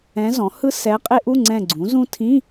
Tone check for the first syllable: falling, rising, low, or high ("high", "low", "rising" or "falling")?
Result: rising